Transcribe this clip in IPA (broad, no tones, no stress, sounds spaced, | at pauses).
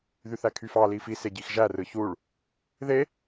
ð y θ æ kʰ y f ɑ l i f i s e ɟ i x ʒ æ r ɯ ç u ɭ | ð e